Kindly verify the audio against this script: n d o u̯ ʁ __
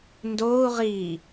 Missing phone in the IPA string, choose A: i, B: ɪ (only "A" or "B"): A